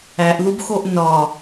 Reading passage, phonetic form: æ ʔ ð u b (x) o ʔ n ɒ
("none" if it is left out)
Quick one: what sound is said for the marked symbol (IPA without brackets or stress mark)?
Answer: x